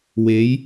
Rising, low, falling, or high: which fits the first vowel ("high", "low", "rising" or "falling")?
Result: rising